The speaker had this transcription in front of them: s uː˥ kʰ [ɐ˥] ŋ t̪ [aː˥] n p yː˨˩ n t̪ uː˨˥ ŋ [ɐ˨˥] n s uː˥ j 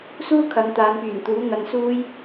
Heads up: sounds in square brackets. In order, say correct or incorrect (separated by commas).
incorrect, incorrect, incorrect